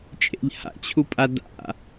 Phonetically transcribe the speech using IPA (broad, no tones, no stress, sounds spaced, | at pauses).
t͡ʃʼ ḛ ʎ h a̰ t͡ɕʰ u pʼ a d a̰